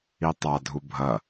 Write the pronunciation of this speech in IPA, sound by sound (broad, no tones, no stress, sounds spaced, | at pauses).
i tˤ a dʱ u bʱ ɐ